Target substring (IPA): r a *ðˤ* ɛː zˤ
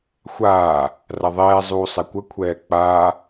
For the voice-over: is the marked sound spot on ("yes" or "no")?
yes